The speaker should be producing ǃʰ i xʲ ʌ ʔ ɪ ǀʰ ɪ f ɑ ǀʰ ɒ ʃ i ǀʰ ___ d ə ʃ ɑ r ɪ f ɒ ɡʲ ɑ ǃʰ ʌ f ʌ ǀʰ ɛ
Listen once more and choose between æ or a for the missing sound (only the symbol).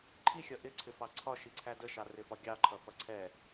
æ